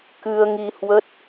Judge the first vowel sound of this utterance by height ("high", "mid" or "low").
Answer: high